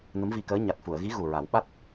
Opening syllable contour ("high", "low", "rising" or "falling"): rising